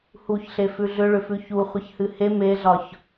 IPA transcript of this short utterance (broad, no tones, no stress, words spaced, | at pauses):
huçɬe fʉɮʏɭʏfʉ çuχʷɨçhɨ he meɮɒç